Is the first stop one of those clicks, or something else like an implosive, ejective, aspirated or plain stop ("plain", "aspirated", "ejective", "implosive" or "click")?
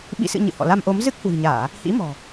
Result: implosive